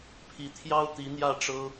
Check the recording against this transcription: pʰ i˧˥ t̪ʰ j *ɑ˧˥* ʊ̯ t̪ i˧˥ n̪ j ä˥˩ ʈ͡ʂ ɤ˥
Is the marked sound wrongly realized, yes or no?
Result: yes